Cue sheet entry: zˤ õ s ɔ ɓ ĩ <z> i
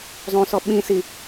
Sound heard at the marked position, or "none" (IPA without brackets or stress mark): s